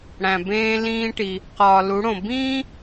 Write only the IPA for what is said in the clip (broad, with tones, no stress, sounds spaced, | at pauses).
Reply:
ɽ æ̃˩ b ẽː˧ l ĩː˧ ʈ i˩ | q ɒː˩ l u˩˧ ɽ õ˩ b ĩː˥